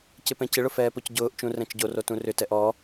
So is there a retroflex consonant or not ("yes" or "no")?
yes